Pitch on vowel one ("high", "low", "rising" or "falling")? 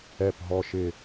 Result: low